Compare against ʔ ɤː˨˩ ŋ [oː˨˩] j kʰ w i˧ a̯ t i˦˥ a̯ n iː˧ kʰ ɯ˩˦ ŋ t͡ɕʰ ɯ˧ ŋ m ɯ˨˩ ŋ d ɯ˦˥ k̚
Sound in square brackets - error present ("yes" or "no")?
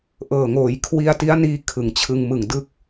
yes